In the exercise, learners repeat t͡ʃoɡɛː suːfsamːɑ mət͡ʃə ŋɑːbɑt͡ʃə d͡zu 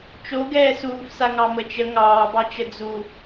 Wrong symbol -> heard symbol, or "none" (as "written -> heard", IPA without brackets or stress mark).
mː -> ŋ